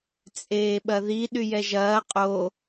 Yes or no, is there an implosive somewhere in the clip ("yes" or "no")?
yes